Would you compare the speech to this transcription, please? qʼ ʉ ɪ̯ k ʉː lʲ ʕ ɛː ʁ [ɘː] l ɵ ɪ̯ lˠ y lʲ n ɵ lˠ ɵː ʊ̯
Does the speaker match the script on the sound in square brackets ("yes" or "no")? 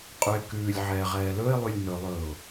no